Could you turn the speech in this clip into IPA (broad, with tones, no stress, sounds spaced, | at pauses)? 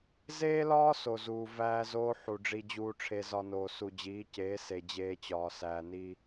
z eː˦ l ɒː˦ s o˨ z uː˨ v æː˦ z oː˦ ħ u˨ ɖ͡ʐ i˦ d͡ʑ uː˦ ʈ͡ʂʰ e˦ z ɒ˦ n oː˨ s u˨ d͡ʑ iː˨˦ c eː˨˦ s e˨ d͡ʑ eː˦ t͡ɕ ɒː˨ s æː˨ n iː˦